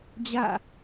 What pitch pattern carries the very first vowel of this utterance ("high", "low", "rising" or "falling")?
falling